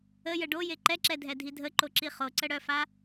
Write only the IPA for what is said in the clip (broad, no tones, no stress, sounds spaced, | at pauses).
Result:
ə j ə ɖ o j e ǃ ɛ ǁ ɛ dʱ ɛ dʱ i dʱ ə ǃ o ǁ i χ o ǀ ə ɽ œ f a